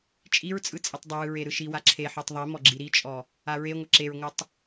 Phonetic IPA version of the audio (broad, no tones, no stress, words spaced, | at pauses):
t͡ʃʼiɹt͡sʼɯ t͡sʼɯtˤdˤəwɯ ɹeɾɯʃiwa ǁʰeħɔtˤ ðˤimɔ ɡ͡ǁiɾit͡ʃʼɔ | aɹeŋʷə ǁeɹŋʷɯtˤ